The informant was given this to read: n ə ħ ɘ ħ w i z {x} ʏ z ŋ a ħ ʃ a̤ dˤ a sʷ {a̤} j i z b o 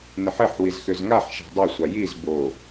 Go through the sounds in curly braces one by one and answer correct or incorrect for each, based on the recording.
correct, incorrect: a

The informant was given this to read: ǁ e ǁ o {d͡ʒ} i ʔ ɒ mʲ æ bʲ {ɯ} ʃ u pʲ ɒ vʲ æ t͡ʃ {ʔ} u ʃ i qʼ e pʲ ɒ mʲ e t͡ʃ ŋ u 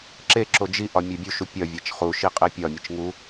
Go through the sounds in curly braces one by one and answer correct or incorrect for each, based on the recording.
correct, incorrect: u, incorrect: χ

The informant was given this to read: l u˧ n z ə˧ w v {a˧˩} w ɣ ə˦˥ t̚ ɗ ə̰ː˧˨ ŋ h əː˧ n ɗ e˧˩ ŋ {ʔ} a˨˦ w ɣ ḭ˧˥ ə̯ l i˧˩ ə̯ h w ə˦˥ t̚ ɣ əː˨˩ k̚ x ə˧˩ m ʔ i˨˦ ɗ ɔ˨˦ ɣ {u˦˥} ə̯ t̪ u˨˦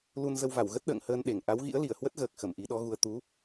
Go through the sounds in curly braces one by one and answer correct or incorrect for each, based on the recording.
correct, correct, incorrect: u˧

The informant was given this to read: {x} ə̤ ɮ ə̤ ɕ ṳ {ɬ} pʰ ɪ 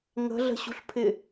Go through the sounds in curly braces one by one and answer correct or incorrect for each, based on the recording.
incorrect: ŋ, correct

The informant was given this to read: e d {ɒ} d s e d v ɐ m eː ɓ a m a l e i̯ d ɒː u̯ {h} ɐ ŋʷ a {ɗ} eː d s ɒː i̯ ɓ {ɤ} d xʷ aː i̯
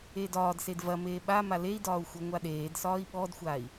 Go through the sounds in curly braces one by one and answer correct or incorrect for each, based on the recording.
incorrect: ɒː, incorrect: xʷ, correct, incorrect: ɔ

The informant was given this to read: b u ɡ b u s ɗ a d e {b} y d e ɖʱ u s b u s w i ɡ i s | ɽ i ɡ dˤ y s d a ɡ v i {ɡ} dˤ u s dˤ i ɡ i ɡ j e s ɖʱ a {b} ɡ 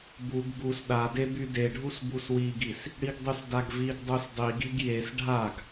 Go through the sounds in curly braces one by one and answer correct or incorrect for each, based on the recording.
correct, correct, incorrect: none

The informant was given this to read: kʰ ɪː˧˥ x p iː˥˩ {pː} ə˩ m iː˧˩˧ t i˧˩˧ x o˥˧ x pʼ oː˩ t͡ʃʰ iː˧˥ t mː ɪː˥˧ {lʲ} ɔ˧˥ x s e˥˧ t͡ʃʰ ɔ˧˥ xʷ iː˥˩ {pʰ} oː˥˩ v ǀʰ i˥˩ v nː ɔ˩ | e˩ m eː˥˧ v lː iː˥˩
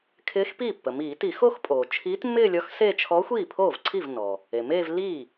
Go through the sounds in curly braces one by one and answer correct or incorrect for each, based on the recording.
correct, correct, correct

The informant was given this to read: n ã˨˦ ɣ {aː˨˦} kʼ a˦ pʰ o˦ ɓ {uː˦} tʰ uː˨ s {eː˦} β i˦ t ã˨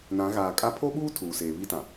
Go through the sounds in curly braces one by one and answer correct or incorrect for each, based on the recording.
incorrect: aː˨, correct, incorrect: eː˨

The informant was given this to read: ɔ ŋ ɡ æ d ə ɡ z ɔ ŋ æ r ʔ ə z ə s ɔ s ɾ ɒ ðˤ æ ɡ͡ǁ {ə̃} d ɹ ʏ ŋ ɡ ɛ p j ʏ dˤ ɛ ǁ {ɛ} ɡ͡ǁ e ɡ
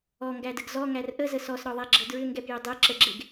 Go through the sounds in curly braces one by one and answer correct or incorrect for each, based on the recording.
incorrect: ə, incorrect: ə

